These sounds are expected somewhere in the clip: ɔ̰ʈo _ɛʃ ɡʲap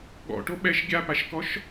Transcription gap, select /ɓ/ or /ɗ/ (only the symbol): ɓ